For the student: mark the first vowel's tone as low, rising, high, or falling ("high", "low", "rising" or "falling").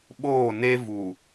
falling